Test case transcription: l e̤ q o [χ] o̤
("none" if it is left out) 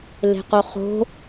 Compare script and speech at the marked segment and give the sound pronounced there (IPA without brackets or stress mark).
χ